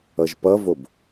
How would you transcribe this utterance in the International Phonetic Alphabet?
ʌ ʒ p ʌ v o b

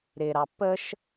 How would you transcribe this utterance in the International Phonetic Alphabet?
ɾ ɪ ɾ ɑ p ə ʃ

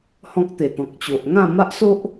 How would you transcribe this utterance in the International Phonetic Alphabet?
h ɔ̃˦ k̚ t̪ e˨˩ t̪ ɔ̃˨ k̚ t͡ɕ o˨ ʔ ŋ ã˥˧ m a˦ ʔ s o˦ ʔ

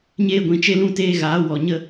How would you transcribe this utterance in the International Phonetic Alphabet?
ɲ eː˧ ɡʷ ĩ˨ t͡ʃ e˧ l ũ˦˨ t eː˧ ɣ aː˨˦ w ɔ˨ ɲ ə˦

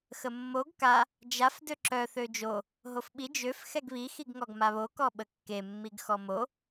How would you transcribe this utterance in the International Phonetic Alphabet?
x ə mː o ɡ k a | d͡ʒ a f d ø ǁ œ θ ø d͡ʒ o | ɦ o f ɓ i d͡ʒ ø f x ɛ ɡ β i x i ɡ ŋ ɔ ɡ m a β o k ɔ ɓ ə kː e mː i ɡ x ɔ m o

